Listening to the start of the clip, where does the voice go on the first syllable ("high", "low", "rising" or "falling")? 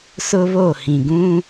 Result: high